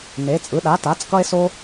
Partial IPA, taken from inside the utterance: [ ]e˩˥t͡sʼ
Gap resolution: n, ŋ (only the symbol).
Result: n